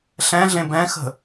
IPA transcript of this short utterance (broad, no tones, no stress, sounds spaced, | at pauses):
ɬ ɛ̃ ɮ ẽ b ɛ̃ x ə̤